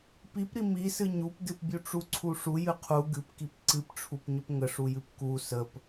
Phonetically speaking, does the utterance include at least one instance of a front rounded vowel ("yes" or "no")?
no